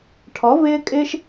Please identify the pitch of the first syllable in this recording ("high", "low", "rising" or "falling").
rising